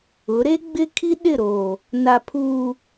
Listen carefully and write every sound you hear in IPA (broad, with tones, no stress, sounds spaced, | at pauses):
ʊ˨˦ ɾ e˦ ɡ͡b ɪ˦ kʰ i˦ ɗ ɪ˦˨ ɾ oː˨ | n a˨ pʰ uː˨